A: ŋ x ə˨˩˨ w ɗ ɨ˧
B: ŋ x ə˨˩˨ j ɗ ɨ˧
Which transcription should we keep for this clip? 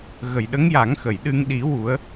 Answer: B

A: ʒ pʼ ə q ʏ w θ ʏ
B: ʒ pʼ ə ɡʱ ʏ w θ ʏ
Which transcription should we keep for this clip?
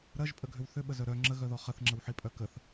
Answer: B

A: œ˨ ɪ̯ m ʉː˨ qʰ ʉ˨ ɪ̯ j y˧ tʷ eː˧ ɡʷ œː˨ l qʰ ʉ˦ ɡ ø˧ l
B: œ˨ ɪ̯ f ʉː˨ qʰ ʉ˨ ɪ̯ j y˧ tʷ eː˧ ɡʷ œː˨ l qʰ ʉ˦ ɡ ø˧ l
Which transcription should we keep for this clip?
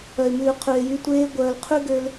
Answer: A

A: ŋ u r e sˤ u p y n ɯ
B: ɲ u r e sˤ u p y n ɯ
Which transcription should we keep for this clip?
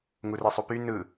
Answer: A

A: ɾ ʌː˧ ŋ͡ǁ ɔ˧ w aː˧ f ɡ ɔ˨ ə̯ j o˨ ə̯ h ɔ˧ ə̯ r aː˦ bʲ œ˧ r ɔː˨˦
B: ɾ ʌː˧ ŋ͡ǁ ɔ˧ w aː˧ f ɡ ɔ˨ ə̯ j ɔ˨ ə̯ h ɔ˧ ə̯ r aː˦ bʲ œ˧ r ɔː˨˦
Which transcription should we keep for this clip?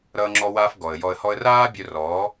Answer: B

